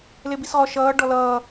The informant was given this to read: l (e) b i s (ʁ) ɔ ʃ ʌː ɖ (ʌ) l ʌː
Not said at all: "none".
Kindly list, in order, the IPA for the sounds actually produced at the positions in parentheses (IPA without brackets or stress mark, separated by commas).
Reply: e, ʁ, ɔ